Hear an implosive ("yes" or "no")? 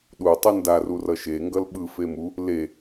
yes